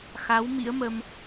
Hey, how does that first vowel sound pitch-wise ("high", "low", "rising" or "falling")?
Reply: rising